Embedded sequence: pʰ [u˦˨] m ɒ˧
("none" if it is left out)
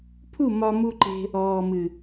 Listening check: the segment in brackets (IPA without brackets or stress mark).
u˦˨